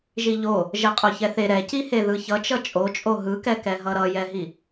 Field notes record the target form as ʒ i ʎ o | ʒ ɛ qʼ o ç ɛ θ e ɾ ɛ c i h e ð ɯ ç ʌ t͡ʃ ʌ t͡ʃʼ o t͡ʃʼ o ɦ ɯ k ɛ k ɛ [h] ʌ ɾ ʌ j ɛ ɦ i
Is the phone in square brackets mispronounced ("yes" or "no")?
yes